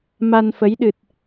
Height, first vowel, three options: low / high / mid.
low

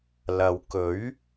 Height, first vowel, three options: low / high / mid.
low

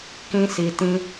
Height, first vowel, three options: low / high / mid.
high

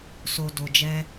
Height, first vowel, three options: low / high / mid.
mid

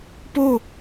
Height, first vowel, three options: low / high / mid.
mid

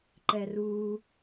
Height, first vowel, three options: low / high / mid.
mid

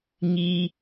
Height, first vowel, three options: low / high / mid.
high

